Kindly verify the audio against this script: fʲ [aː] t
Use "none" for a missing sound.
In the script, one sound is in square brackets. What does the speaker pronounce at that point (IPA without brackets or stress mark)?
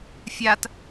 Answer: a